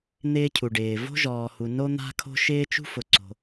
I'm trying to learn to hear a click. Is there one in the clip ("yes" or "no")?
yes